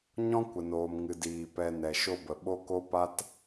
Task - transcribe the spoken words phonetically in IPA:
ɲɔ̃˦kʷə˨noː˨m ŋɨ˨diː˨ pɛ˧ nɛ˨ ʃo˧bə˨ ɓo˦ko˦ pa˦t

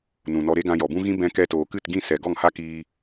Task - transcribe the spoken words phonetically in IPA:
nũ˨nɔ˧ɾe˦ ɡã˧jɔ˨bũ˦ɣĩ˦ bɛ̃˧ kɛ˧toː˨kɨ˦˨t ɡĩ˦˨sɛ˨ ɡɔ˦˨ŋha˦kiː˧

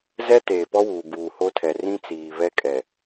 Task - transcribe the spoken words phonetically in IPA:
zɛ˦ teː˨pɔ˦wuː˨ buː˨ho˦tʰɛ˨ rĩ˦t͡siː˨ βɛ˦kʼɛ˨

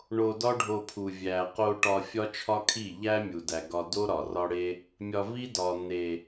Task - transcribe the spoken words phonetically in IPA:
ɳo˧dɒ˦ɖʱo˧pʰu˨ vʲæ˨qo˧ ʈɒ˧ fʲɒ˦t͡ʃʰɒ˦kʰi˦˨ ʎæ˦ mʲu˨dæ˨ɡɒ˧do˦ ɾɒ˨rɒ˦ɽe˦ | mʲɒ˧vi˦dɒ˨n̪e˨

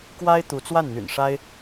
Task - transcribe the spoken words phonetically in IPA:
kwa˥ɪ̯ t̪u˧˥t͡swa˥˩n n̪y̰˨˩nʂa˥ɪ̯

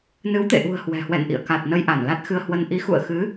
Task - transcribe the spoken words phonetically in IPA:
nɨ˨˦wt̪ḛ˧˨ʔṳ˨˩ə̯ hwɛ̤˨˩hwɛ̰˧˨nʔḭ˧˨ə̯ ka˨˩t̚ nə˧jʔa˧˩nla˦˥t̚xɨ˧ə̯ hwə˧n ʔi˨˦ xṵ˧˨ə̯xɨ˨˦

